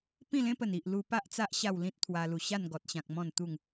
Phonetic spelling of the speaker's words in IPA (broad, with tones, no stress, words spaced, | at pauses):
pĩ˥˧lẽ˦pə˨˩n i˨ʔlu˧ pa˦ʔt͡sa˦ʔ ɕa˥˧wlĩ˦t̚ t̪ʰwa˧lu˨˩ ɕa˥˧nɡɔ˨t̚ɕã˨k̚ mɔ̃˥˧nt̪u˥˧ŋ